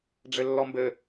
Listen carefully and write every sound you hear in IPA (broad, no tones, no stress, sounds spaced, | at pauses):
ɖ͡ʐ ɘ lː ɔ m b ɘ